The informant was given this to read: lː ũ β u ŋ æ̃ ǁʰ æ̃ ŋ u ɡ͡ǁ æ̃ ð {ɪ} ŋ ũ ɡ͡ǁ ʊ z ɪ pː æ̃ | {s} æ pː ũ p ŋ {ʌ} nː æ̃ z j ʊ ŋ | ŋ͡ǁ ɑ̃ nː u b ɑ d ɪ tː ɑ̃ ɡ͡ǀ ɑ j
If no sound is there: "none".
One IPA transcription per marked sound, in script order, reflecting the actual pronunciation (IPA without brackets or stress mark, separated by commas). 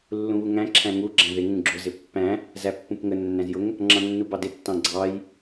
ɪ, z, ə